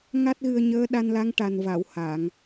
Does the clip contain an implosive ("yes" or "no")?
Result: yes